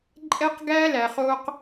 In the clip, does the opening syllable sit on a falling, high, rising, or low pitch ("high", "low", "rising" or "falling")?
high